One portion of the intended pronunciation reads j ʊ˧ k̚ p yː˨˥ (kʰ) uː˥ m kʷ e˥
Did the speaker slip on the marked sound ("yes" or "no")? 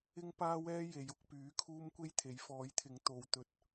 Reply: no